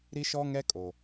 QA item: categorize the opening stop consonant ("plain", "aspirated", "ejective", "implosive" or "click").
ejective